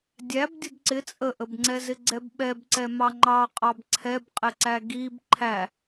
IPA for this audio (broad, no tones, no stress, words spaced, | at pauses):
dʲæb dʲʊbǀɪ t͡sʼəʔəbŋ͡ǀɛzɪ ɡ͡ǀɛbɓɛb ǀɛmɑŋ͡ǃɑ qʼɑbǀʰɛbqʼɪǀæ ɡib ǃʰæ